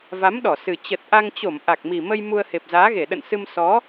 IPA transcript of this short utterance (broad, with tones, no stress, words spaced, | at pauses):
va˨˦mɗɔ˧˩sɨ˨˩ t͡ɕə˨˩t̚ʔa˧ŋt͡ɕo˧˩m ʔa˨˩k̚mi˨˩mə˧j mu˧ə̯he˨˩p̚zaː˨˦ɣe˧˩ ɗə̰˧˨nsɨ˧m sɔ˨˦